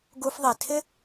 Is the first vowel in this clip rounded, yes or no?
yes